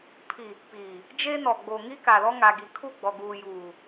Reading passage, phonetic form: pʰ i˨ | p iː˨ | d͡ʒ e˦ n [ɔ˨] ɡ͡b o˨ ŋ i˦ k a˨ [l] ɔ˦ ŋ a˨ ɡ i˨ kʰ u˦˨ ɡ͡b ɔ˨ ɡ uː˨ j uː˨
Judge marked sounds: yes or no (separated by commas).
yes, yes